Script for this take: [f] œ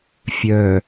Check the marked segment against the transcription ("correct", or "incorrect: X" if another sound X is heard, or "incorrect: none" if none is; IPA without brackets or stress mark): incorrect: fʲ